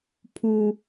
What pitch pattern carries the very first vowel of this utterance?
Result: high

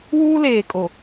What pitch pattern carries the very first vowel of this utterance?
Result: high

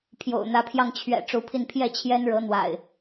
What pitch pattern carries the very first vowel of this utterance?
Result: low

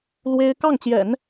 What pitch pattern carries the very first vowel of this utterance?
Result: high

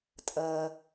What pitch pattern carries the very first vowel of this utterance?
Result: low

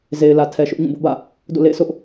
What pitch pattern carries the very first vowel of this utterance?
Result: low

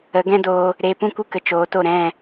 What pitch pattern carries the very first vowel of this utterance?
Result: rising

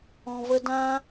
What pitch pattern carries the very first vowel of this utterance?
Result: low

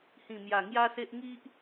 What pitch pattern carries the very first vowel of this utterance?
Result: low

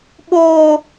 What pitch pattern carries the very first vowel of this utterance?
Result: high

